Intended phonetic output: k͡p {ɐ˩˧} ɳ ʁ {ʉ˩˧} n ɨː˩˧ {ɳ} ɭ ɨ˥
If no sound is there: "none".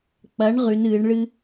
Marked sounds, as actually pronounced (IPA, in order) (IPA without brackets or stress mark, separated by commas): ɐ˩˧, ʉ˩˧, ɳ